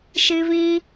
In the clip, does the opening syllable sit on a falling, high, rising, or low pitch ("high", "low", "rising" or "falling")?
high